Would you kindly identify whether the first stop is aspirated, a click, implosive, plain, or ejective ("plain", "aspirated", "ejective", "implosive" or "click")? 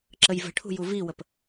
click